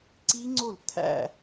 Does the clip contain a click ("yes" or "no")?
yes